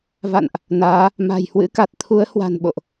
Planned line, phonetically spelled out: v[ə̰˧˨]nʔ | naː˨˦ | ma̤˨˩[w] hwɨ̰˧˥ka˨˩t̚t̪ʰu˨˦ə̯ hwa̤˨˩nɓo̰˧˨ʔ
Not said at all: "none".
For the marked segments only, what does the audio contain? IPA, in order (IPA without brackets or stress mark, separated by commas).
a̰˧˨, j